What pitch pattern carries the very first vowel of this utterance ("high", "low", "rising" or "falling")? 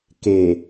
low